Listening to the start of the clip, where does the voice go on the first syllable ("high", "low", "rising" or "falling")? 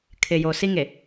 low